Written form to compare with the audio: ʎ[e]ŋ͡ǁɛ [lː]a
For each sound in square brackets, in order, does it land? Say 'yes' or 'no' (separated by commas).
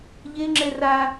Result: yes, no